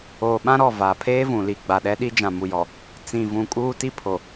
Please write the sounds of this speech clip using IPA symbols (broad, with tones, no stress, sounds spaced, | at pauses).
oː˨ ɓ ã˦ ɾ ɔ˦˨ v aː˨ pʰ eː˦ v ũ˨ l i˨ ɡ͡b a˨ ɗ ɛ˦ ɗ i˦ d͡ʒ ã˨ m u˨ j ɔ˨ | t͡s ĩ˨ v ũ˨ kʼ uː˦ t i˦ pʰ o˨